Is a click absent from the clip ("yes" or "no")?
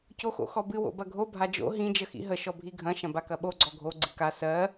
no